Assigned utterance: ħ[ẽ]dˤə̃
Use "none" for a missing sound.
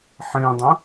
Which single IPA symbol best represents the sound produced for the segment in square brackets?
ẽ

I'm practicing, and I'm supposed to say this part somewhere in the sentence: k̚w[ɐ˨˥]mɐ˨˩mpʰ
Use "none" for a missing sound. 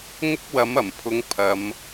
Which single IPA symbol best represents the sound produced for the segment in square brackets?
ɐ˨˥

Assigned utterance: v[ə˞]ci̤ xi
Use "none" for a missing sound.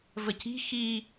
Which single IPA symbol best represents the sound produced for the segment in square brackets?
ə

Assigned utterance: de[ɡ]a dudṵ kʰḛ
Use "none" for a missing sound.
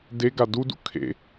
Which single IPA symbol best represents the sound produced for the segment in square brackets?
ɡ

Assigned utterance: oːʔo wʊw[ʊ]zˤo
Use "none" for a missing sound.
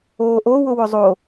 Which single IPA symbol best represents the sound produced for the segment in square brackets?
ʊ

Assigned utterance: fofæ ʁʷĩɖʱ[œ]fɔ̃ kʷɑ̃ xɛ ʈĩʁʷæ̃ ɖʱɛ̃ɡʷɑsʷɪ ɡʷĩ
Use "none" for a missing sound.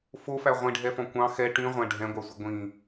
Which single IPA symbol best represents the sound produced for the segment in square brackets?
ɛ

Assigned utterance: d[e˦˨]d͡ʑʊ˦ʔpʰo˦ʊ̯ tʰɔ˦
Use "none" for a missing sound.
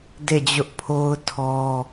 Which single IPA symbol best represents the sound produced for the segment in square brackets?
e˦˨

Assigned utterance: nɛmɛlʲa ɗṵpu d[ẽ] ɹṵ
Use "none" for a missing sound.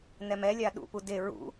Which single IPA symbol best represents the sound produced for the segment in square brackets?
e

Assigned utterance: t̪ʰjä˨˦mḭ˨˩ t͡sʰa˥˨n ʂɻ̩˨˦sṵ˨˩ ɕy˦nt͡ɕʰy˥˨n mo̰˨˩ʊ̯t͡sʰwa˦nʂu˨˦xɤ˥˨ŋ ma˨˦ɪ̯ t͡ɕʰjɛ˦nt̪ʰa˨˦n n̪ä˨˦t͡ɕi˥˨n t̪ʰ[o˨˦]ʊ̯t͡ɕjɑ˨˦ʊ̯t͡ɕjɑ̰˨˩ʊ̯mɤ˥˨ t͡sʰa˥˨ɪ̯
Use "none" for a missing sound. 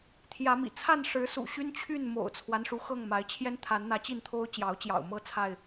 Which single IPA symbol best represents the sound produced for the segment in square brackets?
o˦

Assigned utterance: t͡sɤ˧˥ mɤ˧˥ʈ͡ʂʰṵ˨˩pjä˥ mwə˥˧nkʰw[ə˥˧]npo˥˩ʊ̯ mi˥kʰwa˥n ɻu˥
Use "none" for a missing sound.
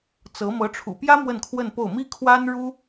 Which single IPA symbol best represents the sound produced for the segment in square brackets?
ə˥˧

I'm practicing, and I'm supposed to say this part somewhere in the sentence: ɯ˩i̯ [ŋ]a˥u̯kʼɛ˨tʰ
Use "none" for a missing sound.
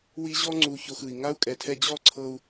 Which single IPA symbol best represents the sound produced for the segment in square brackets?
ŋ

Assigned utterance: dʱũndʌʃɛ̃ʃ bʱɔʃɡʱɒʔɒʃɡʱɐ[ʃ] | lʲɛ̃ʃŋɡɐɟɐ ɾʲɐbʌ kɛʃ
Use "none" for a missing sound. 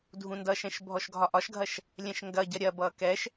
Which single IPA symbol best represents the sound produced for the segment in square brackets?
ʃ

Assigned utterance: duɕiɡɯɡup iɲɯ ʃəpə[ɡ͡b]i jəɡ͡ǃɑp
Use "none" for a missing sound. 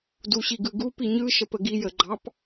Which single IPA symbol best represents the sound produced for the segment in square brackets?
ɡ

